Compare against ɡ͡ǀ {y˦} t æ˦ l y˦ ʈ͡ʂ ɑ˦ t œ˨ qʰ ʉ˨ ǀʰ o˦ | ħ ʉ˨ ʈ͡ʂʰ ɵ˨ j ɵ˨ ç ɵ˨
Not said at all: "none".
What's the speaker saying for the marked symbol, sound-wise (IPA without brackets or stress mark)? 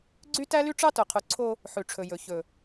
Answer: y˦